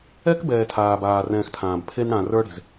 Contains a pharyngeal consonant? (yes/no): no